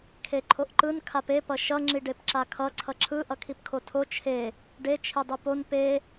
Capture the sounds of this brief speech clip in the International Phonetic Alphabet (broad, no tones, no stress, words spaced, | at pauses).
kʰeǃʰoʔǃɯn kʰape pʌʃʌ ŋ͡ǁiɖepǁakʰʌ ǀʰʌǁʰɯ ʔʌkʰipkʰotʰo t͡ʃʰe | ɖe t͡ʃʰedˤɯpon pe